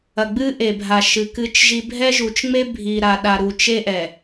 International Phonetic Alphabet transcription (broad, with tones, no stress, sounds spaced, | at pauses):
ɐ˨ ɡ͡b ɨ˦ ʔ e˨ bʱ a˨ ʃ ɨ˨ k ɨ˦ t͡ʃ ʒ i˦ bʱ ɛ˦ ʒ u˨ t͡ʃ ŋ͡m e˦ bʱ i˨ ɾ a˨ ɗ a˨ ɾ u˨ t͡ʃ e˦ ʔ ɛ˨